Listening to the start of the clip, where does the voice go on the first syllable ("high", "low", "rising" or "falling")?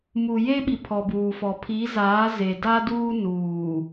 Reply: low